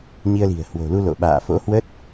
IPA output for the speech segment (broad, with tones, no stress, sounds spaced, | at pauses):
ɲ i˧ ə̯ l i̤˨˩ ə̯ h w o̤˨˩ l u˧ l o̰˧˨ ɓ a̰ː˧˨ f o̰˧˥ h w ə˦˥ t̚